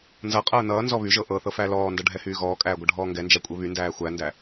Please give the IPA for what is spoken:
n z ʌ qʼ ɤː n ʌː n z ɔ β y ʒ ɤ ʔ ɤ θ ɤ f æ l ɔː n d ʌ ɖʱ ɛ h yː ɣ ɔː kʼ æː ɡʷ ʌ ɖʱ ɔː ŋ ɡ ɛ n d͡ʒ æ kʷʼ e β y n d æː xʷ æ n d æ

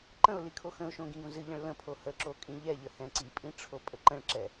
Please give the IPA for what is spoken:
ǃ ə̃ ʊ̯ l i kʰ o x ə̃ ʊ̯ ʃ õ ɡ ĩ ɡ õ z ɨ ʎ ə̃ ɭ l ə̃ pʰ o h ə ǁ o kʼ ĩ ʎ ɛ ʎ ə h ɛ̃ ǀ i pʼ ĩ ʈ͡ʂʰ o pʼ ə ǃ ə̃ ɭ ǁ ɛ

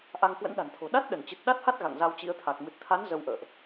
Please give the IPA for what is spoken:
ʔ a˧ ŋ k w ə̰˧˥ n ɗ a̤˨˩ n t̪ʰ o̤˨˩ ɗ a˦˥ t̚ ɗ ə˧˩ n t͡ɕ ɨ˨˩ t̚ ɗ a˦˥ t̚ h a˦˥ t̚ ɣ a̰˧˨ ŋ z a˧ w t͡ɕ ḭ˧˥ ə̯ t̪ʰ a˨˩ k̚ m ɨ˨˩ t̚ t̪ʰ a˨˦ n z ə˧ w ʔ ə̰ː˧˨ ʔ

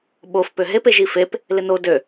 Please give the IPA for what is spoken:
ɓ o f p ø ɦ e p e ʒ i f e p | l ɪ n o d ø

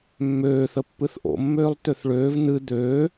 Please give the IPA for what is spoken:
mː øː θ ə pː ɨ θ ʔ o̰ mː øː lˠ t̪ ø θ ɭ øː v n̪ ɨ d̪ øː

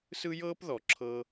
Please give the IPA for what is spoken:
s ɯ˦ j ɤː˦ p ð ɔ˨ ǁʰ ɤː˧

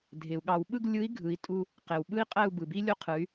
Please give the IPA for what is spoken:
dʱ e˩ u̯ ɠ ɑ˧˩˧ w ɓ ɯ˦˨ ɡ lʲ ɯ˨˦ i̯ ɡʱ ɯ˨˦ i̯ tʼ u˦ | q e˩ w ɓ ɯ˦ i̯ qʼ æ˦˨ u̯ b ɯ˩ b i˦ lʲ o˦ qʰ ɯ˨˦ y̯

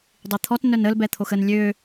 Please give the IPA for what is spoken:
dˤ i t̪ʰ ɔ t n œ n ə l b ɛ t̪ʰ o x ə n lʲ ø

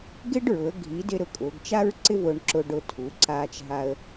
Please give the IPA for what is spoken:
ɡ ɪ˥ ɖ ɹ ʊ˩˧ ə̯ ɡʱ i˨˥ d ɪ˥ ɾ ʊ˨˥ kʼ ʊː˩˧ ɡ t͡ʃ a˥ ɹ ǀ ɪ˥ v ʊː˧ ɳ ǁ ʊ˧ ɖ ʊ˧ tʰ u˩˧ ǀ aː˧ t͡ʃ ɦ a˧ ə̯

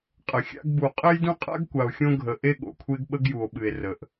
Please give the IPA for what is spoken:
qʼ ə˨ xʲ a̰˦ ɡ b u˨ qʼ ɘ˦ j d ũ˦ qʼ a̰˦ ɡ kʷ a˨ o̯ xʲ õ˦ ɡʱ ə˨ ʔ e˦ ɠ o̰˨ kʷʰ e˦ ɡ ɓ ə˦ ɡ j u˨ o̯ ɓ ɨ˨ e̯ r ə˨ ʔ

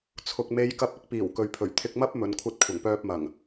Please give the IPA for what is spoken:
t͡sʰ ʊ˨ k̚ m e˨˧ j k ɐ˧ p̚ ɪ˥ k̚ p iː˨˩ w k ɵ˨ ɥ pʰ ɵ˨˩ ɥ t̪ʰ ɪ˧ k̚ m ɐ˥ p̚ m ɵ˨˧ n kʷʰ ɐ˧ t̚ kʷʰ ɐ˨˩ ŋ p œː˧ p̚ m ɐ˨˩ ŋ

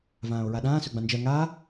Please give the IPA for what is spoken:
v ãː o̯ ɹ a ɗ ãː s ɵ ɡ͡b ã n d͡ʒ ɜ ŋ aː

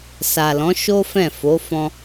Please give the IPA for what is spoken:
s a˨ l ɔ̃˨˦ ʃ o˦ f ɛ̃˦˨ f o˨˦ f ɔ̃˧

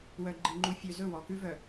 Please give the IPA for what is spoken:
w œ˨ ɡ͡ǃ i˨ ŋ͡ǃ u˨ fʲ ø˨ z ɵ˦˨ w ɔ˨ k ʉ˦ v œ˨

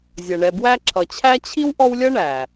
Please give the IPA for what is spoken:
zʲ ʌ˩ ɳ ɛ˨ b w æ˦ ǁʰ ʌ˨ t͡ɕʰ æ˥ t͡ɕʰ i˥ w ʔ ɔ˦ w lʲ ʌ˥ ɳ æ˩

